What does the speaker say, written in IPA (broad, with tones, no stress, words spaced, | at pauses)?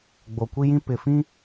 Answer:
ɡ͡bo˨kʷi˦jĩ˦ pɪ˨fĩ˦